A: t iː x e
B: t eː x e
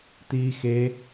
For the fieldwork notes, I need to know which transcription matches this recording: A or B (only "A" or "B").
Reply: A